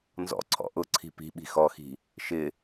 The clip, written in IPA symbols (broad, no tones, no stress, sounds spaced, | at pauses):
n z ɔ̰ ǀʰ ɔ̰ ʔ ʊ ǀʰ i̤ p i̤ ɓ i̤ x ɔ x i̤ | ʃ ɪ